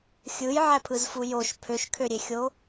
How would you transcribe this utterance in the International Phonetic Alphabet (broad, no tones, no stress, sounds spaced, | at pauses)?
xʲ ɯ j ʕ æ pʰ ɯ z f u j o ʃ pʰ ø ʃ kʰ ø ɾʲ e xʲ o